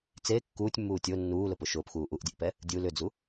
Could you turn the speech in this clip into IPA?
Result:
t͡s e kː uː tʲ mː uː tʲ o nː uː l ʊ p ʊ ʃ ʊː p x uː ʔ u ʔ dʲ ɘ ʔ p ɛ | dʲ u l ʏ d͡z u

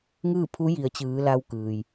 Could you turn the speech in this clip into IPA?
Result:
ŋ ɯː˥˨ pʰ u˧˥ j i˩˧ ə̯ t͡ɕ ɯː˩˧ l a˧ w k ɯː˩ j

